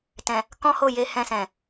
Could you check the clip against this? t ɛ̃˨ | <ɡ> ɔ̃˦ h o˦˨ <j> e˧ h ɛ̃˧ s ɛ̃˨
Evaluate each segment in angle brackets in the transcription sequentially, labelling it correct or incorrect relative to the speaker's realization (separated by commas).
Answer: incorrect, correct